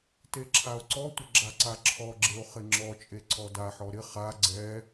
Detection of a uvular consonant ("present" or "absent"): present